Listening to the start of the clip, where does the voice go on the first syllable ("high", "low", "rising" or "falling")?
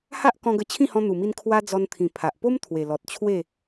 high